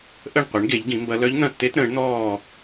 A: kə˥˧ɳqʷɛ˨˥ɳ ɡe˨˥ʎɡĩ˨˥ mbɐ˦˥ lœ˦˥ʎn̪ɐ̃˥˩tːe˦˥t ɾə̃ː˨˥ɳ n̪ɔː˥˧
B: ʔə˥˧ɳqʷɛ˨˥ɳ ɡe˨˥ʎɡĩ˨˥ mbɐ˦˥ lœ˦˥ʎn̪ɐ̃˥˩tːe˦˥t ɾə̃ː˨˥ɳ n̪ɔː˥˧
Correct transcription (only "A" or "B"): B